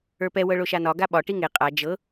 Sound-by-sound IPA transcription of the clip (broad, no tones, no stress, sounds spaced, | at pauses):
ə˞ p ɛ w ɤ ɭ o ʃ a n ɒ ɡ a ɓ ɒ ʈ i ŋ e qʼ a d͡ʒ ɤ